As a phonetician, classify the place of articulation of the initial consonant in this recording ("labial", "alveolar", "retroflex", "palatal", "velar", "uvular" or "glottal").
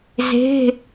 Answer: alveolar